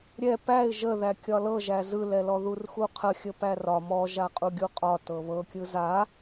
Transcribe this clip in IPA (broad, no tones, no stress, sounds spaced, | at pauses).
ɾʲ ɛ p æ ɪ̯ ʒ ə ð æ kʲ ɒ l ɤ ʒ æ z ɯ l ɛ l ɔ ð u r x u qʰ ə xʲ ə p æ r ɒ m ɔ ʒ a qʼ u ɡʲ u qʼ ɒ t ɤ β ɤ kʲ ɯ z a